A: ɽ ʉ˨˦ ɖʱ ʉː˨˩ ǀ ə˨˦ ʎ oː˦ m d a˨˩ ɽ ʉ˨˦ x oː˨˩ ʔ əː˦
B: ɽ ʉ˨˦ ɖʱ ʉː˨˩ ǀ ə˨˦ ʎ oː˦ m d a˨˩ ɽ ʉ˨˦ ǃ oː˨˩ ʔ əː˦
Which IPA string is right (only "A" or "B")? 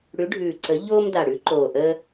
B